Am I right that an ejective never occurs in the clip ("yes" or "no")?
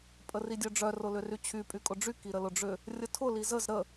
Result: no